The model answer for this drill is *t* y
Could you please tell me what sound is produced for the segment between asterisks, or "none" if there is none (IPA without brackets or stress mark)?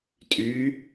tʼ